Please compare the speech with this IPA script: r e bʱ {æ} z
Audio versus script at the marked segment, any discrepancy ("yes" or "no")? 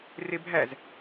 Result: no